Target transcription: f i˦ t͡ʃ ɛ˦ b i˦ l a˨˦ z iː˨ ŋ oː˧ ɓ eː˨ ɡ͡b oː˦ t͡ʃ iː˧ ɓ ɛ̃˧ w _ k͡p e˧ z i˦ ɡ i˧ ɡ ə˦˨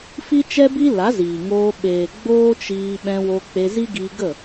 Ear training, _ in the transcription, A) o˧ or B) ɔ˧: A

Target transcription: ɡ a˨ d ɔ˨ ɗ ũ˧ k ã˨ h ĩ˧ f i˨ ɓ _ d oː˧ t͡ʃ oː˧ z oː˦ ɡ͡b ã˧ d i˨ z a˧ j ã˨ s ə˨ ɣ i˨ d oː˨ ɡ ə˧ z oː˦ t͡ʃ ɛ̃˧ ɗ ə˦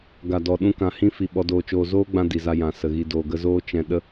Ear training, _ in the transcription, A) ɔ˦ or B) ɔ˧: B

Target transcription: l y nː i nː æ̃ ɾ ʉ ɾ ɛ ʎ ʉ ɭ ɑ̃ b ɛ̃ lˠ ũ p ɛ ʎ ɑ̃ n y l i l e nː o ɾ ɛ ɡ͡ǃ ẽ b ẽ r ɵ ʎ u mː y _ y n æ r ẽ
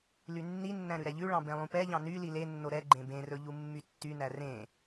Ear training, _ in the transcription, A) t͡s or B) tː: B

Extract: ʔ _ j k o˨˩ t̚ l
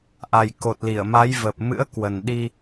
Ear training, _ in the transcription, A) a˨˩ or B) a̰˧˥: A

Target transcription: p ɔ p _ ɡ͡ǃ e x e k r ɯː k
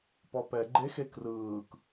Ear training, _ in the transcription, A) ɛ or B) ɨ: A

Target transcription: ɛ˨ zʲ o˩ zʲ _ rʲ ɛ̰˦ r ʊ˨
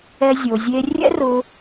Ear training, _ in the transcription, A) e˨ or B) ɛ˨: A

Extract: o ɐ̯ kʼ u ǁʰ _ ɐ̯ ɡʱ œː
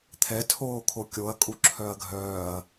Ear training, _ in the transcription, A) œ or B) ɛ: A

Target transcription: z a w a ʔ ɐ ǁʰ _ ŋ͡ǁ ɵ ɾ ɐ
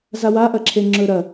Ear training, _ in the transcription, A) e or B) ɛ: A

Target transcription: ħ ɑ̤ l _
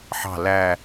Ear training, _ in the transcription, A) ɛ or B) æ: B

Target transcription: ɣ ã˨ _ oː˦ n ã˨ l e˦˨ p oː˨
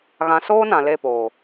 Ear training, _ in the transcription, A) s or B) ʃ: A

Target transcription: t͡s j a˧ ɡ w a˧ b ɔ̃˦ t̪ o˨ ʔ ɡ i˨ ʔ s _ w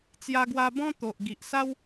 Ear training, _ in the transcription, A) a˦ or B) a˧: A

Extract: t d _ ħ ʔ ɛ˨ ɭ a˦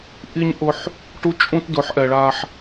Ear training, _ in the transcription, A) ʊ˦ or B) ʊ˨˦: B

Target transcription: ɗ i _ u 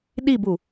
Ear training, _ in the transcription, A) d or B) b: B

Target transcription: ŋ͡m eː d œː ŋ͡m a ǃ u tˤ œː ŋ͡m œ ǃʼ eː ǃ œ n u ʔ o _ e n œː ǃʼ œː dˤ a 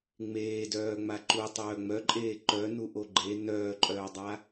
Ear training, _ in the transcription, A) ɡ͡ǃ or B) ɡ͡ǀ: A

